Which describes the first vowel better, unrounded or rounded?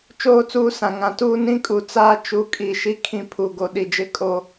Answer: rounded